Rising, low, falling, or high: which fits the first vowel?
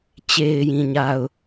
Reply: low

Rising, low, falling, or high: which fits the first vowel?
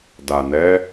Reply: low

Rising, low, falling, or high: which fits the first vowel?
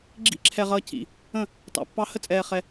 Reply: falling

